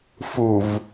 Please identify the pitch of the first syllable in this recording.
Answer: low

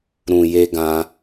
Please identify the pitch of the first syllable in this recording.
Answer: low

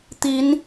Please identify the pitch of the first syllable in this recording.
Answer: rising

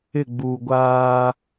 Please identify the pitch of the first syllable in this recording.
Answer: falling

